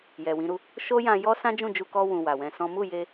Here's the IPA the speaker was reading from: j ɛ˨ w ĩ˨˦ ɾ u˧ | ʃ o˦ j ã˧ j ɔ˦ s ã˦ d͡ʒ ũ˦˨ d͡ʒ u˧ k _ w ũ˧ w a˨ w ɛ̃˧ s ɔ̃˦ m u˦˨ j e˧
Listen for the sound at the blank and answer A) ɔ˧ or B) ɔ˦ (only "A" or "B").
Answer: B